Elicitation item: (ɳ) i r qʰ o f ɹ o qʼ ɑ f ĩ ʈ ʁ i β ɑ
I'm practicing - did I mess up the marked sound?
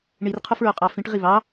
no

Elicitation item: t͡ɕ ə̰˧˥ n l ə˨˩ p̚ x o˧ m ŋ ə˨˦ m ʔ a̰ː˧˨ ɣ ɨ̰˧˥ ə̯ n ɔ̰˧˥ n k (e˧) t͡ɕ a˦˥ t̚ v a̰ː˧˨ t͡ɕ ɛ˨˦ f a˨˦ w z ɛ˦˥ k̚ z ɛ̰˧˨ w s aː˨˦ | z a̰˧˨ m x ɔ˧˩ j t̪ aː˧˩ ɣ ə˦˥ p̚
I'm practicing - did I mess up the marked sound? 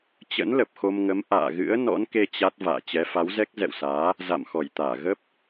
no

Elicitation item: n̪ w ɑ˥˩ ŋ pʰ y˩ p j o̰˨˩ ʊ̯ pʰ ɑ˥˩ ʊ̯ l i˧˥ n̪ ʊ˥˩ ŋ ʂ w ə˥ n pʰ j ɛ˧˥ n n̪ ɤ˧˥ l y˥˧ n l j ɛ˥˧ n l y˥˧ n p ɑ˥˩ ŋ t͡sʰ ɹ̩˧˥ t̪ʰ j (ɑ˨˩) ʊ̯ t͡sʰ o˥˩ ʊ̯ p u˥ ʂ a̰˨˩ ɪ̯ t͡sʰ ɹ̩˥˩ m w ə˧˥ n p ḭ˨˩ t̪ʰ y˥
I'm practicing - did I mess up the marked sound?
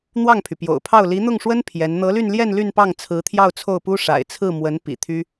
yes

